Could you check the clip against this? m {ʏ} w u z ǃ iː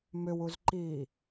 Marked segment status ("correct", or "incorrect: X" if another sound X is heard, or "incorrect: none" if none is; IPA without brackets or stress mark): correct